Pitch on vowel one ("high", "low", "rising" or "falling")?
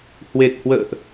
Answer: low